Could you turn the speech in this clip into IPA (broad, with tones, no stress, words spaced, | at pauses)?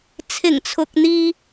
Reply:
t͡sʰɪ˨˩ŋt͡sʰʊ˨k̚n̪iː˧